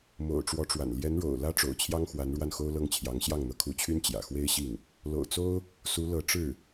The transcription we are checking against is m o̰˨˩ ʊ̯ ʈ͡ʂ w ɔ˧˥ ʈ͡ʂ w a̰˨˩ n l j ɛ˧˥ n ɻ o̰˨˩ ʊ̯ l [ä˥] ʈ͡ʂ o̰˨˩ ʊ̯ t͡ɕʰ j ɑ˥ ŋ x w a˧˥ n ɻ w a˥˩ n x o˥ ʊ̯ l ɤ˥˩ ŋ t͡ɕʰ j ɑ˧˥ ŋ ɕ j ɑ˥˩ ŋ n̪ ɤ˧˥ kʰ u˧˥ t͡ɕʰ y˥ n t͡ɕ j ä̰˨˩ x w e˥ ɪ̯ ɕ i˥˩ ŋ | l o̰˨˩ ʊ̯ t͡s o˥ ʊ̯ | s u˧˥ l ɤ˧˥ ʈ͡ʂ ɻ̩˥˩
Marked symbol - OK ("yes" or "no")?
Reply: yes